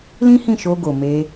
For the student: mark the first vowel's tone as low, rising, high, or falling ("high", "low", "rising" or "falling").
high